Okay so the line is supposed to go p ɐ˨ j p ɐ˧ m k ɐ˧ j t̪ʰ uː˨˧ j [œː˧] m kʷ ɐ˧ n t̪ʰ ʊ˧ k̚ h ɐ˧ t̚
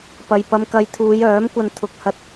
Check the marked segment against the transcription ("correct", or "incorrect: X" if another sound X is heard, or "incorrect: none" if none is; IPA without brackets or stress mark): incorrect: œː˨˥